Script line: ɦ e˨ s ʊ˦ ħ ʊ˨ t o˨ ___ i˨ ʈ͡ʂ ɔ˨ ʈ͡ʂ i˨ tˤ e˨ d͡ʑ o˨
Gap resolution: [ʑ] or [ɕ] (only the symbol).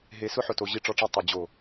ʑ